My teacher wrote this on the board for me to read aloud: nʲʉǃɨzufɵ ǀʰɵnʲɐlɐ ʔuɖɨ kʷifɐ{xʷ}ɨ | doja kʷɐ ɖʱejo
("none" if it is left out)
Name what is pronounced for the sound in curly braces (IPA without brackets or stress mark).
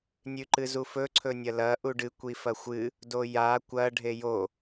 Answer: xʷ